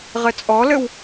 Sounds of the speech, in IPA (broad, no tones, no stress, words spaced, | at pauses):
ʁɘt͡sʼɔlɘw